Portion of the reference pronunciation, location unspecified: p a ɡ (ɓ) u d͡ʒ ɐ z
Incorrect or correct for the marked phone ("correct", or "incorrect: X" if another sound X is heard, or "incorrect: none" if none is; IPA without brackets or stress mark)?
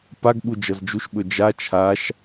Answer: correct